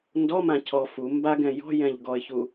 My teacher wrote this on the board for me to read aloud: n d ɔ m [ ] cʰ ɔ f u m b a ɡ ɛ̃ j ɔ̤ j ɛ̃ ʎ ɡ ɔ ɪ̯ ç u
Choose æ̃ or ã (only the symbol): ã